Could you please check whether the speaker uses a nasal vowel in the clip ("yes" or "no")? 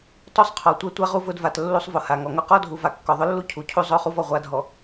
no